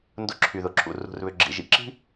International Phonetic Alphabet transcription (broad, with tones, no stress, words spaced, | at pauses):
ndʊ˦˨ǁʰy˨ðʊ˨ǁʰṵ˨ rṳ˨rβʏ˨ ɡ͡ǁḭ˨ʒḭ˨ǁi̤˦